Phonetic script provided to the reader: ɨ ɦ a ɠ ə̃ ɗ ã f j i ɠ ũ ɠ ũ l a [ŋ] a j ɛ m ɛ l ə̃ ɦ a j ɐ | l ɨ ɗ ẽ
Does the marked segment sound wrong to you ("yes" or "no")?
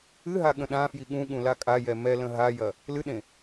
yes